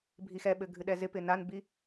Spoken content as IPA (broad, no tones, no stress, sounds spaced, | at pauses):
bʱ i x ɛ ɓ ɘ ɡʱ ɨ ɗ ɛ z ɪ p ɪ n a n b i